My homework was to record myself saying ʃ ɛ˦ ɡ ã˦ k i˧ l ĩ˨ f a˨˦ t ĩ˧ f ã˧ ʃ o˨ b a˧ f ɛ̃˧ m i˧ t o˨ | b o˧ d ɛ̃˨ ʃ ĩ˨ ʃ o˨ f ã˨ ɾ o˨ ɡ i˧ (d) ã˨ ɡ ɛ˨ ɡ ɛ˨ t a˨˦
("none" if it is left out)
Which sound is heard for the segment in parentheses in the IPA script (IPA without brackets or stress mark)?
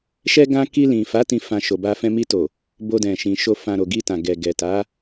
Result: t